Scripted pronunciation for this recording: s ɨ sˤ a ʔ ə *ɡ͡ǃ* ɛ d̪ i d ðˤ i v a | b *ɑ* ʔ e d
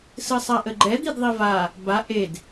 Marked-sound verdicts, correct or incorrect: correct, incorrect: a

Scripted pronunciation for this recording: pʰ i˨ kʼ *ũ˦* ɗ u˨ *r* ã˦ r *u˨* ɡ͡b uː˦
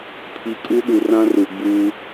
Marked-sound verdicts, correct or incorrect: incorrect: u˦, correct, correct

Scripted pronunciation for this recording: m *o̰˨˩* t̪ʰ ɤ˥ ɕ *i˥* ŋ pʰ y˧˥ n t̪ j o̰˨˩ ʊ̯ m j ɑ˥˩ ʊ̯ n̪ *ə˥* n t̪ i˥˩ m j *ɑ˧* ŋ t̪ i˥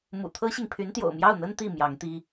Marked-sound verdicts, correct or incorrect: incorrect: ṵ˨˩, incorrect: i˨, correct, incorrect: ɑ˧˥

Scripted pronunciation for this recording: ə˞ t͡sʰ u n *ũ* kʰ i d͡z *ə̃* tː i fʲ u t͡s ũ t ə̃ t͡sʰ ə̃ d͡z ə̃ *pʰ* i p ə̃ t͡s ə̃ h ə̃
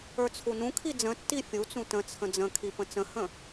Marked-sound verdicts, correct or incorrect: correct, correct, incorrect: kʰ

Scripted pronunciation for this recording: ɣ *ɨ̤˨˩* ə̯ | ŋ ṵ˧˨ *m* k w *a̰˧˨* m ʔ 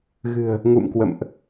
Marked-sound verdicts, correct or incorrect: correct, correct, incorrect: ə̰˧˨

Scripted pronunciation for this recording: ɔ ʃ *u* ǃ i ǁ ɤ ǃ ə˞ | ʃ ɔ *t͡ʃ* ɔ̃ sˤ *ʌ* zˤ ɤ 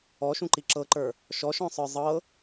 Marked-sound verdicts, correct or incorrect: incorrect: ũ, incorrect: ʃ, incorrect: ə˞

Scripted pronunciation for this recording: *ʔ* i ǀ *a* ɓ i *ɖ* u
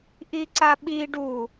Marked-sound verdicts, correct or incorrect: correct, correct, correct

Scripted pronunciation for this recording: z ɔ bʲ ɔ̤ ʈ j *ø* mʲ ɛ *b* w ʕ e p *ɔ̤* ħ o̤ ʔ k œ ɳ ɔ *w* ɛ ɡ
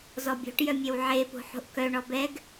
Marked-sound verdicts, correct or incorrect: incorrect: œ, incorrect: none, incorrect: o̤, incorrect: b

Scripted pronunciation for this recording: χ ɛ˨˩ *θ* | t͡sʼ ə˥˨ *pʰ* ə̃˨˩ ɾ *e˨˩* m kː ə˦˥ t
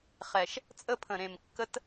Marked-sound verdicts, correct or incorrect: incorrect: ʃ, correct, incorrect: ẽ˨˩

